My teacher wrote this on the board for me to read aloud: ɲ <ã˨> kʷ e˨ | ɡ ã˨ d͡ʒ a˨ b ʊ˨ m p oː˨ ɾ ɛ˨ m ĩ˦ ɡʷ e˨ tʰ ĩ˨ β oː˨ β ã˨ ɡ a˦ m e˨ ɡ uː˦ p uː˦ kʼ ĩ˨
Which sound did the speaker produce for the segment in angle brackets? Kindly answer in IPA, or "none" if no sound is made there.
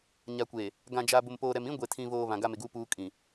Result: a˨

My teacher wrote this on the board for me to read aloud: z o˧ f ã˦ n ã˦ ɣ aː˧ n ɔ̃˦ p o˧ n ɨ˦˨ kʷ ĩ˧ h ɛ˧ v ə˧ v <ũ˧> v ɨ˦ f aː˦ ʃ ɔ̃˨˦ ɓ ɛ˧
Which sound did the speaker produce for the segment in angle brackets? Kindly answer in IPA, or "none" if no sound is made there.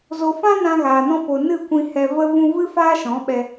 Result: ũ˧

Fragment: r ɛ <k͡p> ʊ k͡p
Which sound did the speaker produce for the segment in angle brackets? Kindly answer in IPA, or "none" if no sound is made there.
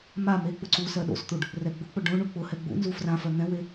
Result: ɡ͡b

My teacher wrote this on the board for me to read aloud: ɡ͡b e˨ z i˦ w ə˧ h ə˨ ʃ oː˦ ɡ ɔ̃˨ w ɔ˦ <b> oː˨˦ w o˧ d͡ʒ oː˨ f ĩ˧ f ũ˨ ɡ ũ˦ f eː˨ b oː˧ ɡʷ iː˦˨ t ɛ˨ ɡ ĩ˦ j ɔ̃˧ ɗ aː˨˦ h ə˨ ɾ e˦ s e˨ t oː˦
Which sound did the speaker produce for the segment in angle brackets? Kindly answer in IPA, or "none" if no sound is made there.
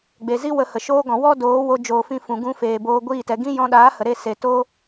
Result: d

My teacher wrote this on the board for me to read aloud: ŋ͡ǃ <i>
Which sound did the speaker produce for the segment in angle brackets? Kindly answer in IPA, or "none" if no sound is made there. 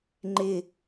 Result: ɪ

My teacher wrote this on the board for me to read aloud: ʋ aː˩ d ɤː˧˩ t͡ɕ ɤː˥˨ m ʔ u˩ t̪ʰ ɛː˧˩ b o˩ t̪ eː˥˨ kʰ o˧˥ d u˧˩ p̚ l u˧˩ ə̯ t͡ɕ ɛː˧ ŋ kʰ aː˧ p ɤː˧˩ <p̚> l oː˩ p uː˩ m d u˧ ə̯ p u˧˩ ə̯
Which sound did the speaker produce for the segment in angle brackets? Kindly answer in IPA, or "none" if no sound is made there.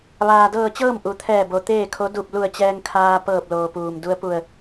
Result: p̚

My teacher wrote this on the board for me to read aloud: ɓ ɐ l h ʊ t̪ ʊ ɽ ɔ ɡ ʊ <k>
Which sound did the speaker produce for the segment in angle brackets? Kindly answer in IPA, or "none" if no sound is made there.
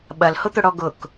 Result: k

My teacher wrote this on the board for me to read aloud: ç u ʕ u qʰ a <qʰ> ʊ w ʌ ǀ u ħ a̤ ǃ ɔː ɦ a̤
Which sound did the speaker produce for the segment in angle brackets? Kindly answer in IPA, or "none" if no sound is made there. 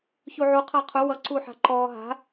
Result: qʰ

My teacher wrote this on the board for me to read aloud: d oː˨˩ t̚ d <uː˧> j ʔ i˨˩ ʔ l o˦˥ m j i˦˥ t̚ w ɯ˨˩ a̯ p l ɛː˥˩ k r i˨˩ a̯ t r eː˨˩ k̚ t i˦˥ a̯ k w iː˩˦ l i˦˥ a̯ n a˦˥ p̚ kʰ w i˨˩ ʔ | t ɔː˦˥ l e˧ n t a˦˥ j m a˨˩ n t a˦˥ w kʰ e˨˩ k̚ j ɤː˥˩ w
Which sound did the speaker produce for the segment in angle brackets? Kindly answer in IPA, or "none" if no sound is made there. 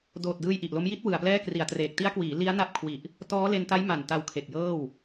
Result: ɯː˧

